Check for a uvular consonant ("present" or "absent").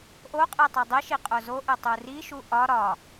present